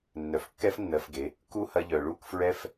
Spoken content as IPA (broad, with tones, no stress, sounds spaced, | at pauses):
nː œ˨ f kː ɛ˦ f nː ɜ˧ f ɡ e˨˦ | k u˦ h ɐ˧ ʎ œ˨ ɭ u˦˨ k f ɹ ɛ˧ f